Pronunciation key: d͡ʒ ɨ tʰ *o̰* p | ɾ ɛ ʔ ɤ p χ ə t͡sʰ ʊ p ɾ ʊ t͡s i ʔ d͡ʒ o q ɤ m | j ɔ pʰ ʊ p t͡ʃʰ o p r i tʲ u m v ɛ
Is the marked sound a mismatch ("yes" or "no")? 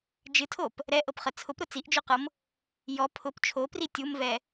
yes